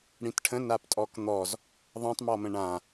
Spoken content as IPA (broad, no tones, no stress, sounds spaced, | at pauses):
ɽ ĩ t ʈʰ ə̃ n a p tʼ ɔ k n̪ ɔ z | ðˤ ɛ̃ tˤ m ɔ m ə̃ ɳ ã